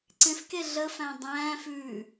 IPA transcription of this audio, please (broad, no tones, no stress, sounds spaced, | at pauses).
ǀ ẽ f k e ɮ ə f æ̃ dˤ æ̃ː f ʉː